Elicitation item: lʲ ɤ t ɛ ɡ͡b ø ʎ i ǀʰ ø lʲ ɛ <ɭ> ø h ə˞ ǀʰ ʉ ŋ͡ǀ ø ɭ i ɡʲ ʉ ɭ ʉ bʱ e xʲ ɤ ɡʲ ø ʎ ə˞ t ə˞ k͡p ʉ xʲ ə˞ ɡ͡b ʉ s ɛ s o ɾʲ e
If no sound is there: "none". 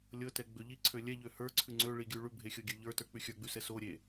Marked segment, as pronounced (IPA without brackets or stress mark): ʎ